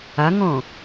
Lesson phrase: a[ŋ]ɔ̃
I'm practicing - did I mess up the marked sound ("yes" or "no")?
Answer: no